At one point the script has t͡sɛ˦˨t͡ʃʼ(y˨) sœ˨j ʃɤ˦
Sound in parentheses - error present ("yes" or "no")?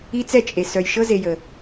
yes